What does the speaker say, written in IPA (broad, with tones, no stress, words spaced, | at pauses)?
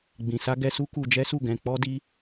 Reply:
ɡ͡bĩ˨sa˧ɡɛ˧ su˦ku˧d͡ʒɛ˦su˦˨ ɡɛ̃˧k͡pɔ˦di˦